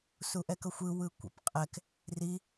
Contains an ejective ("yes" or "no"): yes